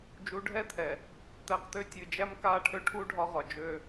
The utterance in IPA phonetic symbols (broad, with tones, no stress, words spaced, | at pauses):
d͡ʒu˨˦ɖʱɛ˦t̪ʰɛ˨ | t̪æ˨˦qt̪ø˦ tʲɨ˨ d͡ʒæ˦mka˦˨ʈʰø˦ʈʰu˦ ɖʱɒ˦ʁɒ˨ d͡ʒø˦